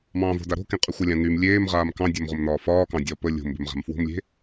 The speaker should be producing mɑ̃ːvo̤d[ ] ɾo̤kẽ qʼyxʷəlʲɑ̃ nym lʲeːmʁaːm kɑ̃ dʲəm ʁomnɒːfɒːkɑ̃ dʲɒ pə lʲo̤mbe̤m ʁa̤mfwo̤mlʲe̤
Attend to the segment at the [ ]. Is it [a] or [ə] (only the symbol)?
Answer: a